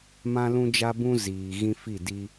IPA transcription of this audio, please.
m ã˦ l ũ˦ d͡ʒ a˦ b ũ˦ z iː˨ ɣ ĩ˦ f i˦˨ d i˦

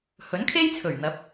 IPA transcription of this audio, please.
h ɵ˨˥ n kʰ e˥ j t͡sʰ ɵ˨˩ ɥ n̪ ɐ˨˥ p̚

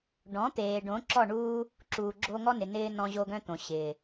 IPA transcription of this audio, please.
ɖ ɔ̃˨˦ t̪ eː˨ ɖ õ˨˦ ǁ ɔ˦˨ ɳ uː˦ | ǁ uː˨ ɡ͡ǁ o˧ ŋ ɔ˦ n ɪ˨ n ɪː˧ n ɔ̃˧ ʑ o˧ ɡ œ̃˧ t̪ õ˨ ɕ ɪː˨

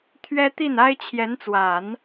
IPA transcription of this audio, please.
t̪ʰ ɥ ɛ˥ t̪ i˥˩ n a˥ ɪ̯ t͡ɕʰ j ɛ˧˥ n t͡s w a˨˩˦ n

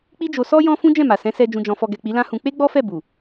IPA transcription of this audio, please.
k͡p i˦ d͡ʒ o˧ s ɔ˦ j ɔ̃˧ f ũ˦ d͡ʒ ɛ̃˦˨ m a˨ s ɛ̃˨˦ s ɛ˧ d͡ʒ ũ˨ d͡ʒ ɔ̃˨ f ɔ˨ ɡ ɛ˨ k͡p i˨˦ l ã˦ h ũ˧ k͡p e˦ ɡ͡b ɔ˦ f ɛ˦˨ b u˨

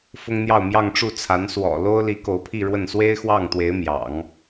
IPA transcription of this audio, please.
f ʊ˥ ŋ n̪ j ɑ˥˧ ʊ̯ m j ɑ˥˧ ŋ ʈ͡ʂ u˥˩ t͡sʰ a˧˥ n s w ɔ̰˨˩ l o˥ ʊ̯ l i˧˥ k o˧˥ ʊ̯ pʰ i˥˧ ɻ w ə˥˩ n s w e˥ ɪ̯ x w ɑ˥˩ ŋ t̪ w e˧˥ ɪ̯ m j ɑ̰˨˩˦ ŋ

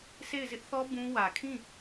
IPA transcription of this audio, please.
sʰ e˦˨ ɪ̯ z ɪ˦ ʔ θ ɔ˦ b ũ˦ w ä˨ kʰ ĩ˦˨

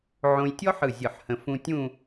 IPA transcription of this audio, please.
ʕ õ˧ j tʲ ɔ˥ ħ ɯ˧˩ zʲ ɯ˧˩ ħ h ə̃˧ f ũ˧ tʲ ũ˥˧

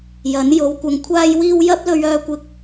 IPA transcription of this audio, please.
j ɐ˨˥ n j o˨˧ w kʷ ɐ˨ ŋ kʷʰ aː˧ j w iː˧ w j ɐ˥ p̚ l ɵ˧ ɥ œː˧ kʷ ɪ˧ k̚

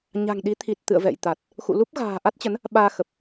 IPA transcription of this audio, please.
ɲ a̤˨˩ ŋ ɗ i˨˦ t̪ʰ i˨˩ t̚ t̪ ɨ̰˧˨ ə̯ v ɛ̰˧˨ j t̪ a˨˩ t̚ | x ṵ˧˨ l u˦˥ p̚ ɣ a̤ː˨˩ ʔ a˦˥ t̚ t͡ɕ ə˨˦ n | ɓ aː˧ x ə˨˩ p̚

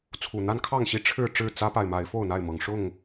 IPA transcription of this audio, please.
t͡sʰ u˨˩ n̪ a˦ n kʰ ɑ˥˨ ŋ ɕ i˥˨ ʈ͡ʂʰ ɻ̩˥˨ ʈ͡ʂ ɻ̩˥˨ t͡s ä˦ p a˨ ɪ̯ m a˨˦ ɪ̯ f o˥˨ ʊ̯ n̪ a˥˨ ɪ̯ m ɤ˨˩ ŋ ʂ ʊ˥˨ ŋ

